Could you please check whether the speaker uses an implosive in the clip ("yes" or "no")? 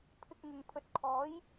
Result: no